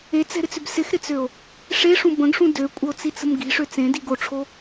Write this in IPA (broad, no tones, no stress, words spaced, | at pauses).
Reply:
et͡sɛ̤ɾɪt͡sʏb sɪxɾɪt͡søo̯ | ʂeʂũ bə̃ɡʂũ døkʷʼɐo̯t͡sit͡sə̤m ɡi̤ʂø t͡sẽdiɡ oʈ͡ʂʰo